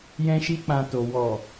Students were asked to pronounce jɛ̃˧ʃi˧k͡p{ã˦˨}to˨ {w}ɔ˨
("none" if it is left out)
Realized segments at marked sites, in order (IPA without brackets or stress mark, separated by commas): ã˨, w